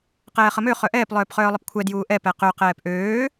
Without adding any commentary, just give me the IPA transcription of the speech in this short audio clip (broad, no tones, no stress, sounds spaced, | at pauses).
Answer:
q ɛː χ ə m ø χ œ ʔ ɛː p lˠ œː p χ œː lˠ ə p kʷʰ ɛ d j uː ʔ ɛ p ɛ q ø q ɛː p ʔ øː